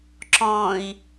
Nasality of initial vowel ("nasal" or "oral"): nasal